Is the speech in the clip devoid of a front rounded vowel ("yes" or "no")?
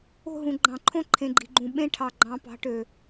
no